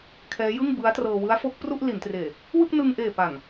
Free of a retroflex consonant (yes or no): yes